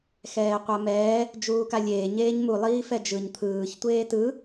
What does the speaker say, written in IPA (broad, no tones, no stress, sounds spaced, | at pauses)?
x ɛː qʷ a m ɛː | d͡ʒ uː k a lʲ eː ɲ eː ɲ m u lˠ iː f ɛ d͡ʒ ɯ ɲ t̪ʰ ɯː ç tʷ eː t ɯ